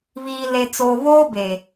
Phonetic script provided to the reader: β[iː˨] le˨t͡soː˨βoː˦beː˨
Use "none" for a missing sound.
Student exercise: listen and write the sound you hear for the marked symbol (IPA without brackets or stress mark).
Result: iː˨